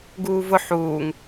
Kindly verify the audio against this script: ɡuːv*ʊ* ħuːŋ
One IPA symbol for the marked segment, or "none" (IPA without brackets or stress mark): ʊ